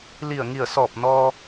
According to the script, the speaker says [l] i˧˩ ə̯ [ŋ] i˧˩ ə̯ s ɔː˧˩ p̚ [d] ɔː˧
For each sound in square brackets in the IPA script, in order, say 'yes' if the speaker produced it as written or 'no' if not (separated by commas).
yes, yes, no